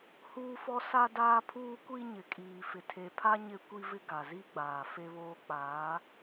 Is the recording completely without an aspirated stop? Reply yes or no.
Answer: no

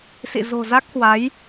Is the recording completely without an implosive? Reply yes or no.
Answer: yes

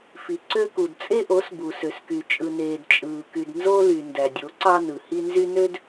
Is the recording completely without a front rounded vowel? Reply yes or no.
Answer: no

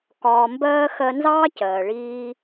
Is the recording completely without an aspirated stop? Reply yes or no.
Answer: yes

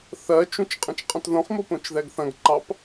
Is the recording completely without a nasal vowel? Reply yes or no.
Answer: no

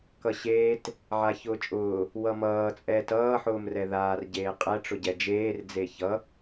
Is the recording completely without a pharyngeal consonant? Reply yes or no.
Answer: no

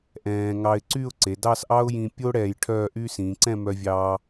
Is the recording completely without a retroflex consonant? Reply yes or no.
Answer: no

